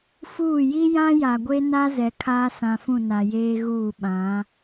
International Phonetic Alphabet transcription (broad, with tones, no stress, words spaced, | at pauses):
fuː˦˨ ji˦ jã˦ja˨ɡʷe˦na˦ zɛ˨kʰaː˦sã˨fũ˦˨ na˨jeː˦ ɣuː˦˨ɓã˨˦